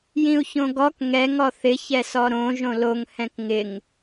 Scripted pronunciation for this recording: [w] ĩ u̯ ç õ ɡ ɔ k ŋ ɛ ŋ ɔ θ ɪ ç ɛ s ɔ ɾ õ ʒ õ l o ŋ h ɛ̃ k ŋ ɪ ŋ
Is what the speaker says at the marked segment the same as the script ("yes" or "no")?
no